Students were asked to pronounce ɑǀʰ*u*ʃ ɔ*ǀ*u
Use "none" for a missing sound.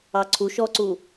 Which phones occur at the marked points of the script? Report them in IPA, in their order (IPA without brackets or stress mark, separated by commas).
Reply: u, ǀ